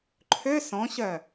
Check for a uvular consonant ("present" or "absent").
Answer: absent